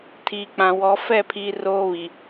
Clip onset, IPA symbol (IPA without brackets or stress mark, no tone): tʰ